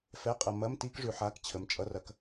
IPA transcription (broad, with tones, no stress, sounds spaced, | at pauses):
f ɛ˧˥˧ qʼ ɐ˧ m ɐ˧˥˧ m t i˥ k ʐ ʉ˧ ħ a˧˥˧ k t͡ɕʰ ə˩˥ m t͡ʃʼ ʌ˧˥˧ r ɐ˧ k